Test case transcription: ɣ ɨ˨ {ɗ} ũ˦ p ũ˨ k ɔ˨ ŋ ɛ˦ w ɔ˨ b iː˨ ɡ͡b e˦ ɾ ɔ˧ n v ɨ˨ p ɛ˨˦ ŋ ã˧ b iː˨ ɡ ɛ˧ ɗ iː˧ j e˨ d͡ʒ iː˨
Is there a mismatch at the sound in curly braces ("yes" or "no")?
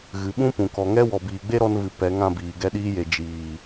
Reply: yes